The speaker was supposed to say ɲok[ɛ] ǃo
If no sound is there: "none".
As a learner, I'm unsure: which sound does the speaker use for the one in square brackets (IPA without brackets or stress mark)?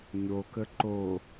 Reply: ə